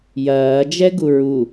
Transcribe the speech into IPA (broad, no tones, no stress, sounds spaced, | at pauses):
j ɐː d͡ʒ ɛ ɡ u ɹ u